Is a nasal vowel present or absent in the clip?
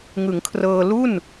absent